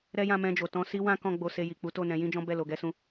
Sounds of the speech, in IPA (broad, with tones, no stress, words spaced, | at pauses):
ɾɛ˦jã˦˨mɛ̃˧d͡ʒo˨ tɔ̃˧si˦wã˦ kɔ̃˦ɡ͡bo˧ se˧ji˨ k͡pu˨˦to˦˨nɛ̃˨˦ jĩ˦d͡ʒɔ̃˦bɛ˦˨ lo˨ɡɛ˧sũ˧